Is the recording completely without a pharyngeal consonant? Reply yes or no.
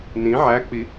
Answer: no